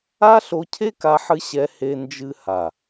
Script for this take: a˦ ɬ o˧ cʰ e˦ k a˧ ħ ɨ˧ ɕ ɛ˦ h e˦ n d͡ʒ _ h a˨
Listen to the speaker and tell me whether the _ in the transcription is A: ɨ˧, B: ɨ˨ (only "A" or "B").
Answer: A